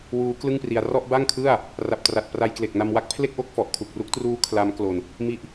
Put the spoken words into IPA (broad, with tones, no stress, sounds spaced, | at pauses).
w uː˦˥ k l ɯ˥˩ ŋ p r i˧ a̯ r ɔ˥˩ ʔ b a˥˩ ŋ kʰ ɯ˥˩ a̯ | r a˨˩ p̚ t r a˨˩ t̚ p r a˧ j k l e˨˩ k̚ n a˧ m w a˦˥ k̚ pʰ l e˥˩ k̚ ʔ o˥˩ k̚ f ɔ˨˩ ʔ kʰ u˨˩ k̚ r u˦˥ k̚ t r uː˦˥ kʰ l a˦˥ m k l o˧ n | m i˦˥ ʔ